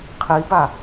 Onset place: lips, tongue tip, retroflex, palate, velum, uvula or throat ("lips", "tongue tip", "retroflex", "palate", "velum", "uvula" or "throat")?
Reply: uvula